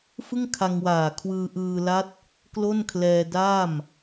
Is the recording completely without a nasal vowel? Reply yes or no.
yes